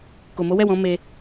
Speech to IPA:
ko˨mo˨˦wɛ˦˨wɔ̃˨˦ me˧

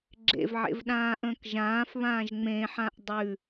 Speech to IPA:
ɡ͡ǁḛvʕḛvɗãːʔə̃ːk ʒãːfβãːʒ ŋ͡mẽħãʔ dˤʉ

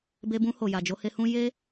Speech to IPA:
be˧bũ˧ho˨ja˨ d͡ʒo˧he˧hũ˦ je˦

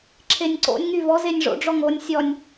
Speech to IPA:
ǁʰenʲǀo̰nʲ ŋyvɔ zenʲʐo̰ ɖ͡ʐɔŋonʲ sʲɔnʲ

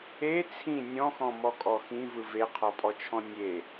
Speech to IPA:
e t͡sʰĩ nʲɔ̃xɔ̃mɔkʼɔ xĩvɯ veqʰɔpʼɔt͡ʃʰɔ̃ nʲe

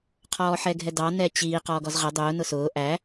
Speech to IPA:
qʰɔːħɛɡʱɛdɑ nɛt͡ɕiː qɔːɡɔzʁə dˤʊː nʊsʊː ʔæ

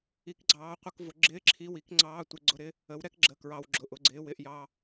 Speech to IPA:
i˨˥kɡ͡ǀɑː˨˥qʷə˧˥˧kvʊ˨˥ ɡ͡ǁɪː˧˥˧ǁʰi˧˥˧wi˨˥kŋ͡ǀɑː˧˥˧ tʷɪ˨˥ɡ͡ǀʊ˧˥˧ɾɪ˧˥˧ | ə˨˥wɾɛ˨˥k ɡ͡ǁə˧˥˧kɹɑ˧˥˧w ɡ͡ǁʊ˧˥˧ʔʊ˧˥˧ɡ͡ǀɪː˧˥˧w ɪ˨˥ʔjɑ˧˥˧

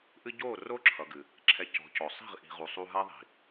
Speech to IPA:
ʔɨ˦ ɟoː˦˨ro˦ǁʰʌ˨ɡɨ˨ | ǁʰɛ˨ cɔ̤˨˦cɔ˨ sˤi̤˦˨ʁʔi̤˨ ʁu˨sˤu˧ ɦa˦ðˤi̤˨

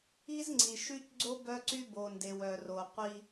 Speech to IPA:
i˦z ŋ͡ǀi˨ʃy˦cɡ͡ǀo˦ bœ˦ǀy˦ bo˨nde˨w œ˨ro˨ qʷi˦

